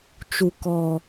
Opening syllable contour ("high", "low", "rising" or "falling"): high